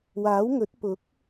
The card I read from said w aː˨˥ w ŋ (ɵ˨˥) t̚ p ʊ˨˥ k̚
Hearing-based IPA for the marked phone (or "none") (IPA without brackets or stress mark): ɵ˨˥